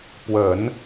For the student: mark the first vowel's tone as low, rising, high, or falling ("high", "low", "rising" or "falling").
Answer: low